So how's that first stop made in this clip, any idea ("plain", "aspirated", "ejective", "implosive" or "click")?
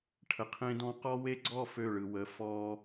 aspirated